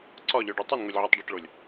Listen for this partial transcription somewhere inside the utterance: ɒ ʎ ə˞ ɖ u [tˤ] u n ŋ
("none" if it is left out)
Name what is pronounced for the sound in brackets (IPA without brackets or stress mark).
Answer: tˤ